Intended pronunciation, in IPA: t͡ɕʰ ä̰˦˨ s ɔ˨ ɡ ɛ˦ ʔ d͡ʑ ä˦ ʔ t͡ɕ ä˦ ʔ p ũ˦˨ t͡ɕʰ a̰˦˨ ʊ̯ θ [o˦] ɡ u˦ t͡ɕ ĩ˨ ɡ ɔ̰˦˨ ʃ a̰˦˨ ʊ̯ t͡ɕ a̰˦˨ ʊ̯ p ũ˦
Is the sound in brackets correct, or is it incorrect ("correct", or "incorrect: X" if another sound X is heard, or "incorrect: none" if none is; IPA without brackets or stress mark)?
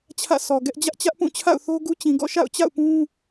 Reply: correct